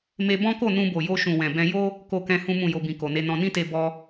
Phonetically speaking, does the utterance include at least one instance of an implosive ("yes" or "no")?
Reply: no